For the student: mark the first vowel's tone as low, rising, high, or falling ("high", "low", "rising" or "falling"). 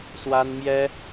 high